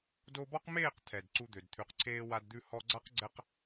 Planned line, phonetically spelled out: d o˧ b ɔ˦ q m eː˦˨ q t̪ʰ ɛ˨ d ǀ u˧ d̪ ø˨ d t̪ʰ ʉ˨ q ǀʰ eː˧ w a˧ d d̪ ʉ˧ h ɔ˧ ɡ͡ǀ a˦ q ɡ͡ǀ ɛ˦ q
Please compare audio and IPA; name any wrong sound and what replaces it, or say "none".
none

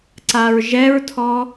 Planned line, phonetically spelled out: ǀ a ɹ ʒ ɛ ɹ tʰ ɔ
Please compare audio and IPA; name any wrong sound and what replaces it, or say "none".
none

